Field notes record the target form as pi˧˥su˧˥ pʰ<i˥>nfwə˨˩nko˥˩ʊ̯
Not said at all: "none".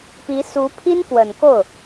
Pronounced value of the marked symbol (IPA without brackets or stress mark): i˥